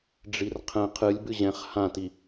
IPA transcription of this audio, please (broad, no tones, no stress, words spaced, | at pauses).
ɖ͡ʐirqʰɛ̃ qʰɨlʲ bɨʑɛ̃χ hãti